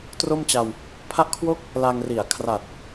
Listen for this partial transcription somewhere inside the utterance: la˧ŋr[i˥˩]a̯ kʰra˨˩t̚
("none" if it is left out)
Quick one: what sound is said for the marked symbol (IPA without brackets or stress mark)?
i˨˩